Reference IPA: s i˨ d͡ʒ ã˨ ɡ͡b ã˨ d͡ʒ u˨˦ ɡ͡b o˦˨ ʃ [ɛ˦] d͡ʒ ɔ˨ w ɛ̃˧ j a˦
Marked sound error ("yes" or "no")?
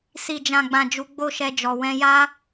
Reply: yes